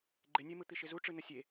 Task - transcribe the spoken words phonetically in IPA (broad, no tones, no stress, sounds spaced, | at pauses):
ɡ͡ǃ ɪ nʲ e m ɯ t̪ i ʃ ɪ z u ʈ͡ʂ ɯ n ə sʲ e